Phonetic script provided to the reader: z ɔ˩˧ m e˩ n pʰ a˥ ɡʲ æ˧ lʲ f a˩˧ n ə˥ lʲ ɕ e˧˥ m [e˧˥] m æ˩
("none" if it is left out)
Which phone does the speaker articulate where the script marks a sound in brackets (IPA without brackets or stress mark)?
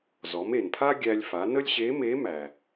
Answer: e˧˥